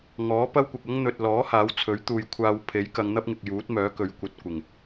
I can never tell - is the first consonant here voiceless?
no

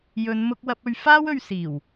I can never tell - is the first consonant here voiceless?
no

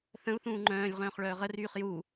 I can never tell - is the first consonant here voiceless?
yes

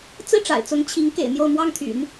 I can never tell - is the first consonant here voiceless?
yes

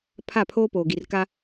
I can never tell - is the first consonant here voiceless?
yes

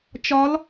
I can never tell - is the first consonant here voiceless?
yes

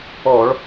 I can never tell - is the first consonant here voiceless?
no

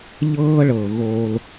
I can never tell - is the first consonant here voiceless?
no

